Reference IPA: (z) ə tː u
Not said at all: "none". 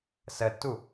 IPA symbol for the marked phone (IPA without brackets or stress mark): s